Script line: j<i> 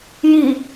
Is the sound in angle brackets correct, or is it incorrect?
correct